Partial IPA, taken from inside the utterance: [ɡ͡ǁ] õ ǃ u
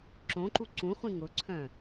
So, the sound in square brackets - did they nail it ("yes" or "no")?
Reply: no